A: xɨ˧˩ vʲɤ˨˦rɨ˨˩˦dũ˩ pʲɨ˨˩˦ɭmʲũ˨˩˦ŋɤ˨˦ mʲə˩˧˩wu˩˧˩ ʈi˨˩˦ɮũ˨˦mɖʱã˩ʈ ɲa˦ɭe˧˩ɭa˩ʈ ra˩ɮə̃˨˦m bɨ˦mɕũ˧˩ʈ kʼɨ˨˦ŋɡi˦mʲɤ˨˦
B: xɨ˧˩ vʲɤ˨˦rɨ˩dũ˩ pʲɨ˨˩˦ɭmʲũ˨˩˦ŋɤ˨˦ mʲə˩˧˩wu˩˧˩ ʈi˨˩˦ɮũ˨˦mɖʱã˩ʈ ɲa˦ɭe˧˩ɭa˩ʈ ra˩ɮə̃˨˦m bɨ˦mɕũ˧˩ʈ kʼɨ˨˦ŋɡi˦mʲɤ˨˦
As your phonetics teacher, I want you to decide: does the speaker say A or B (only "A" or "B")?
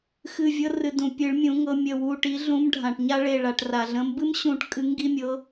B